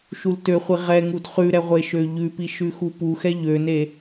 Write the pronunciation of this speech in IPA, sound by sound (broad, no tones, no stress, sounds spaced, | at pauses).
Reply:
ʃ u l t ø χʷ i ʁ ɛ ŋ u d χ ʉ ɾ ɛ ʁʷ e ʃ ø ʎ ʉ p i ʃ ʉ x u p u x ɛ ʎ ø n e